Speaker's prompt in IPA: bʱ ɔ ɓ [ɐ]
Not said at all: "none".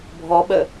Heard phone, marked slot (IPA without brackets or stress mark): ə